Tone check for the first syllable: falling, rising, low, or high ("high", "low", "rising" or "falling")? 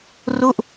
falling